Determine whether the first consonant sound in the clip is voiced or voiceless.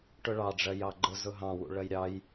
voiceless